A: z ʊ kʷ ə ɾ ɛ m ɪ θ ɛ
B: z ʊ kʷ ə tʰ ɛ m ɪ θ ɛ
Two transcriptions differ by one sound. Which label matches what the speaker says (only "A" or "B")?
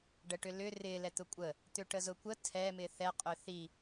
B